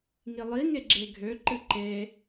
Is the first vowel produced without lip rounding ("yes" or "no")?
yes